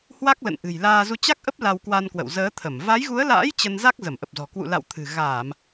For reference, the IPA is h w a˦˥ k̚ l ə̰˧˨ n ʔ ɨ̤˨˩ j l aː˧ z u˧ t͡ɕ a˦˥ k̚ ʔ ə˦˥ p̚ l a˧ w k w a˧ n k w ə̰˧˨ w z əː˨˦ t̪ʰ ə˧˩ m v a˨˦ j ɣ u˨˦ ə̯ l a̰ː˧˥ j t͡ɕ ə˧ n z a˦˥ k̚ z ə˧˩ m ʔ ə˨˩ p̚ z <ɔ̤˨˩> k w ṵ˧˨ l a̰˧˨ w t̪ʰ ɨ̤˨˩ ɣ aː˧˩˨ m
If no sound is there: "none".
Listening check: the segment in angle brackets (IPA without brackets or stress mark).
ɔ̤˨˩